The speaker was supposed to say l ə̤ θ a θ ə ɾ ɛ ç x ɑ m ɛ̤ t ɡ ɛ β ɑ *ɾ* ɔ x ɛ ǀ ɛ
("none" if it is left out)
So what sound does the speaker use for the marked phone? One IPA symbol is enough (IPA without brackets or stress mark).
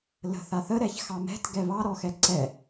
ɾ